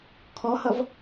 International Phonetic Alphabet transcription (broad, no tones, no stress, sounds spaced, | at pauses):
kʰ ɔ h ʌ v